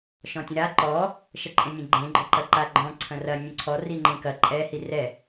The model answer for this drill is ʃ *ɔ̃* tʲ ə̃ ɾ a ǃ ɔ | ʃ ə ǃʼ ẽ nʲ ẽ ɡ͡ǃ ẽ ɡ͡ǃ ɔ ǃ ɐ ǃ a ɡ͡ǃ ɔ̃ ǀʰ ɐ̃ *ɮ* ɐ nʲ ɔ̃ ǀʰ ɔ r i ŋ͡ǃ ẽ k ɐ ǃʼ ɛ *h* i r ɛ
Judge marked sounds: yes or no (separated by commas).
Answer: yes, no, yes